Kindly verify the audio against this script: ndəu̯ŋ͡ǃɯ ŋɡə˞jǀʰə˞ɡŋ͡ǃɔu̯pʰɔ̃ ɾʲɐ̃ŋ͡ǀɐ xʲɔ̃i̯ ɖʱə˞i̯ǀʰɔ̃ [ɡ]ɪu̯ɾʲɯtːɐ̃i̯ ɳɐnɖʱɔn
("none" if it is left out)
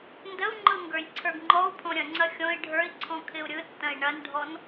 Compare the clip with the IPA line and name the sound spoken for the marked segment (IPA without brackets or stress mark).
kʰ